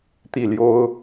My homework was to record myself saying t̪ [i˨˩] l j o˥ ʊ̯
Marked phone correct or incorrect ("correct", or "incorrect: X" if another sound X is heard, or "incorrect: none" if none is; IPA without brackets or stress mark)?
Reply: incorrect: i˥˩